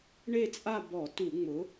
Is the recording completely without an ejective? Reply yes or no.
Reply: no